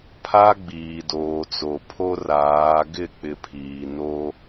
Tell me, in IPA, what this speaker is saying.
pʰ a˦ ɡ͡b iː˨ d oː˨ t͡s o˨ pʰ o˦ r aː˨˦ ɡ ɪ˦˨ k͡p ɪ˨ pʰ iː˨ n o˦

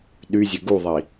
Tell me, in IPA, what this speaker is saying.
ɗ y zʲ ø ɡ u ðˤ i

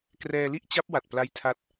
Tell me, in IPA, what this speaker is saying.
k r ɛː˧ l i˥˩ ʔ t͡ɕ a˦˥ p̚ w a˨˩ t̚ p l a˦˥ j tʰ a˦˥ t̚

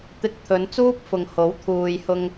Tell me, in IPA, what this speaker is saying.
t̪ ɪ˧ k̚ t̪ʰ ɵ˨˧ n t͡s uː˥ p̚ f ʊ˨ ŋ h o˨˥ w t̪ʰ uː˨ j h ʊ˧ ŋ

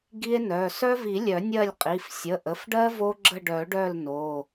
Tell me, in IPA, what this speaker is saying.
ɡ i˦ e̯ n œ˩˧˩ s œ˦ v i˨˩˦ lʲ œ˨˩˦ nʲ ɜ˦˨ lʲ qʼ i˩˧˩ f sʲ ə˩˧˩ ʔ ə˩˧˩ f ɖ ɜ˦ v o˦ ɡ͡ǁ ə˦˨ ɖ œ˨˩˦ ɖ œ˦˨ l n o˩˧˩

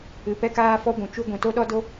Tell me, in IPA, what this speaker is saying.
ɨ˨ p ɛ˦ k aː˦ f ɔ˦ ɡʷ ũ˨ t͡ʃ u˦ ɡʷ ɛ̃˨ t o˦ ɗ ɔ˦ d o˦

